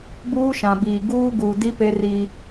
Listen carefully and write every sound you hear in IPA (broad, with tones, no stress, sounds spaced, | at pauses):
b uː˦ ʃ ã˨ b iː˨ ɡ uː˦ ɡ uː˨ d i˦ p e˦ r i˦